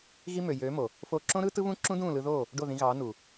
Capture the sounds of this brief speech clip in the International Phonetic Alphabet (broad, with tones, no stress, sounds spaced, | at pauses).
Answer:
ɣ i˧ m ø˨ j øː˨˦ m o˨ | f oː˧ ǁ õ˦ ɾ ɯː˦ t ɯ˦ β ũ˦ ǁ ũ˦ d ũː˦˨ l ɯ˧ ð oː˦˨ | ɖ o˦˨ ð ĩ˧ ɣ ɑː˨˦ n u˨